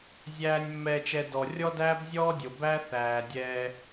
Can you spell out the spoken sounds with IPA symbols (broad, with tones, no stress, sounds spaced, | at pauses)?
zʲ æː˨ nʲ mː ɛː˨ t͡ʃ ɛ˨ d ɔ˨ rʲ ɔ˦ d æː˦ b zʲ ɔː˦ dʲ o˨ b æ˦ θ æː˨ dʲ ɛː˦